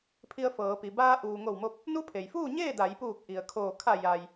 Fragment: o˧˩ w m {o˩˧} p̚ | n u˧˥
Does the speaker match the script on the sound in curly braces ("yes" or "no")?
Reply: no